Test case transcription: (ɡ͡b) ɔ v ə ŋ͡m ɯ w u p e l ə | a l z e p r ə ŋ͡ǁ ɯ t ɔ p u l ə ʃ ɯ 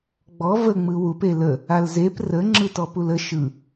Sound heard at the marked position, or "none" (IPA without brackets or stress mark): ɡ͡b